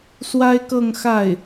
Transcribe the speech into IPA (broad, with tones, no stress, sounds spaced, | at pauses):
s w a˥ ɪ̯ k ɤ˥˧ ŋ x a˥˩ ɪ̯